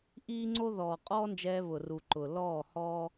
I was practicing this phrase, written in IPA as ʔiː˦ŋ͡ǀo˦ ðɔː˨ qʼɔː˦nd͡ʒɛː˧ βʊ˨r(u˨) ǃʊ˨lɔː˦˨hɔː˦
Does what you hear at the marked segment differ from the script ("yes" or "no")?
no